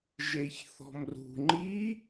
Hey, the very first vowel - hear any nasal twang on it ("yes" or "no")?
no